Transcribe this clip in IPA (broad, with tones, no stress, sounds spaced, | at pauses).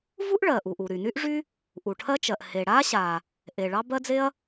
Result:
v u˥ ʔ ɭ ɜ˩ ʔ u˩ ʔ u˩ ɾ y˩ n y˥ ʔ ʐ y˥ | ʔ u˩ ʈʰ ɜ˥ t͡ʃ ɜ˩ ʔ h e˩ ɽ a˥ ɕ a˩ | ʔ e˩ ɭ ɑ˥ b ɜ˥ d͡z e˥ ɐ̯